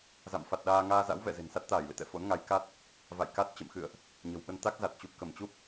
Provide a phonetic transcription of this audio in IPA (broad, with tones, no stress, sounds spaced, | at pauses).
z a̰˧˨ m f a˨˩ t̚ ɗ aː˧ ŋ aː˧ z a̰˧˥ w v ɛ̰˧˨ z e̤˨˩ n s a˦˥ t̚ t̪ aː˧˩ j l ḛ˧˨ t̪ ɛ̰˧˨ f o̰˧˥ n ŋ a˨˦ j k a˦˥ t̚ | v a̰˧˨ j k a˦˥ t̚ t͡ɕ ə̰˧˨ m x ɨ̰˧˨ ə̯ ʔ | ɲ ə̤˨˩ w ɓ ə˧ n t̪ a˦˥ k̚ z a˨˩ t̚ t͡ɕ u˨˩ p̚ k ə˧˩ m t͡ɕ u˦˥ p̚